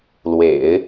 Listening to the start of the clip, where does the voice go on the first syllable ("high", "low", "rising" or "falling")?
low